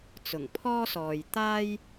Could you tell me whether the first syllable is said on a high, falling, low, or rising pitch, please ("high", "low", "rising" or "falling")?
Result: low